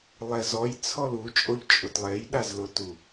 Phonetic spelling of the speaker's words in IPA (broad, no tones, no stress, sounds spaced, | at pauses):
lˠ ɛ z ɔ j t͡sʰ ɔ l u t͡ʃʼ o ʎ t͡ʃʼ ʊ t lˠ e j ɗ a z l ʊ t u